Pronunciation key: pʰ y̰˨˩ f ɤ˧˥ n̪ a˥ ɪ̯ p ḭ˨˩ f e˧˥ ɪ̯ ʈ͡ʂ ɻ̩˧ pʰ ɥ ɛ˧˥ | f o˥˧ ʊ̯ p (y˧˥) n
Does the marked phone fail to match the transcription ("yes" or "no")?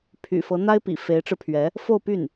yes